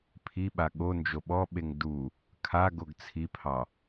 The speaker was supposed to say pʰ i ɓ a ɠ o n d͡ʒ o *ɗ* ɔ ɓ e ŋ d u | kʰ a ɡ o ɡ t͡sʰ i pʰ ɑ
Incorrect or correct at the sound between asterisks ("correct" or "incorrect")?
incorrect